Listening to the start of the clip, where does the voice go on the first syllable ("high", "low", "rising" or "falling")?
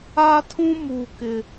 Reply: high